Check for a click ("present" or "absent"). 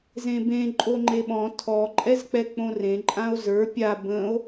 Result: present